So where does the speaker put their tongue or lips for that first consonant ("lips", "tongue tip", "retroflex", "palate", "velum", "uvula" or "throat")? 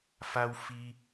lips